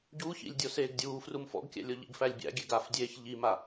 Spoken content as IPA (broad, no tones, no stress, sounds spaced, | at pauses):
ɟ u ç ḭ lʲ dʲ o s eː ɡ dʲ uː f r u m f ɔ̰ ɡ kʲ æ̰ lʲ o ʎ ḭ ɡ f æ lʲ bʲ æ̰ ɡʲ e ɡ a f dʲ eː ç ʎ i m a